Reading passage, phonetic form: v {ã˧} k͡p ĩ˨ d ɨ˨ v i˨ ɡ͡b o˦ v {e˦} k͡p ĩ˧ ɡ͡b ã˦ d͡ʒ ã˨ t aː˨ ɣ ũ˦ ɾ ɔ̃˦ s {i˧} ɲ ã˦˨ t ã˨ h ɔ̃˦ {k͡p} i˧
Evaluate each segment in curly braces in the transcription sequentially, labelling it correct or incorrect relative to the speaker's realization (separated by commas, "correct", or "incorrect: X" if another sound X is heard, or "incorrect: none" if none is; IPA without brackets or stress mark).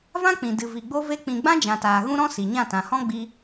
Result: incorrect: ã˦, correct, incorrect: i˨, incorrect: ɡ͡b